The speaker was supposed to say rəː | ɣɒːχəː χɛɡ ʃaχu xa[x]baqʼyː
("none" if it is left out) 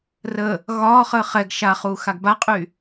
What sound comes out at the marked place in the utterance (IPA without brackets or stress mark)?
ɡ